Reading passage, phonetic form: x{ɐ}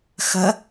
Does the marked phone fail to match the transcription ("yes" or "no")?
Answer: no